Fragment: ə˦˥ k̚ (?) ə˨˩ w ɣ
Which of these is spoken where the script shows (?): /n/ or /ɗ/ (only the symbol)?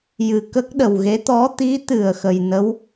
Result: ɗ